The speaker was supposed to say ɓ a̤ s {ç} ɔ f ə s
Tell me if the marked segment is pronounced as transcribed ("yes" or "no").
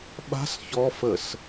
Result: yes